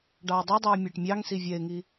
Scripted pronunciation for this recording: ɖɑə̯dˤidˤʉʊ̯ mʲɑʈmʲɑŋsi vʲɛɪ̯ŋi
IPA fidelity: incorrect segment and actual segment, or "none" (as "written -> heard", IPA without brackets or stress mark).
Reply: none